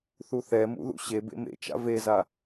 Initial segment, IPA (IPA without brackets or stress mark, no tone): θ